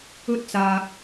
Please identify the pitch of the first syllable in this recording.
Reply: high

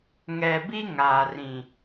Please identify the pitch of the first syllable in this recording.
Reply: low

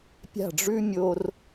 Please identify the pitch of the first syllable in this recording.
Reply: falling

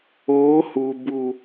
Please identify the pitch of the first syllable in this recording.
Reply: rising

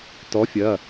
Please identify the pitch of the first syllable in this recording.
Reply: rising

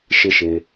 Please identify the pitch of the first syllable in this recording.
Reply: low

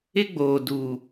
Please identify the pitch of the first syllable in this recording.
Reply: high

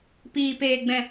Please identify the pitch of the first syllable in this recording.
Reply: low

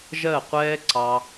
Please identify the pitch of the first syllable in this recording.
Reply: falling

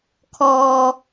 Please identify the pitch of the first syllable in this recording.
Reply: low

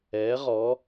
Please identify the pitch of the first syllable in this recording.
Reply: rising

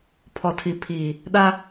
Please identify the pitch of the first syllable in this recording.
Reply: low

